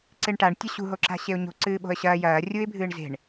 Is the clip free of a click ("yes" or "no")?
no